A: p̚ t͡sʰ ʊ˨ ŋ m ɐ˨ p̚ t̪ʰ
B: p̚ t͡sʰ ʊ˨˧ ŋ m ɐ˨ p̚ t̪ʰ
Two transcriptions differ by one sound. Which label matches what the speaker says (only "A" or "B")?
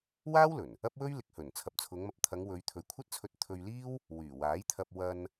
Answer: B